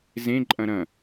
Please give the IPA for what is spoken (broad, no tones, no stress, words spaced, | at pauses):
zẽ ǃʼɐ̃ɾɐ̃